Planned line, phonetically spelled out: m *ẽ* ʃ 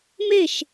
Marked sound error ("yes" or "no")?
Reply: yes